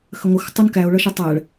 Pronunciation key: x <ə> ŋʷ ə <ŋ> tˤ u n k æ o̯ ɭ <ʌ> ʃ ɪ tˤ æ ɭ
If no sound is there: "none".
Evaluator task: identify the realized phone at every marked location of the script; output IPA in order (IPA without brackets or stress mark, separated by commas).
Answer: ə, x, ʌ